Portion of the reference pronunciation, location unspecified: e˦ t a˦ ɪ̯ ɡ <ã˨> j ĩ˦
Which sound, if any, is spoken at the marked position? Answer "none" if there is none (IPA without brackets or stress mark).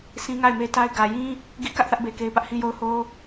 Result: ä˨